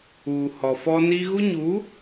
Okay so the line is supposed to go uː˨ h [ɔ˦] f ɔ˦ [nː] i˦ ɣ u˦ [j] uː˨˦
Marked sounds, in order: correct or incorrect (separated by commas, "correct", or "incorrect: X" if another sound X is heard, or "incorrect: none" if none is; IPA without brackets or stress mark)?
incorrect: ɔ˨, incorrect: n, incorrect: ɲ